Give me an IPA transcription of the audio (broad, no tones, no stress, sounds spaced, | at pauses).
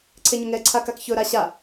ǀʰ e ɲ ɵ ŋ ɛ ǀʰ a k a k ç ɵ ɾ a ɕ a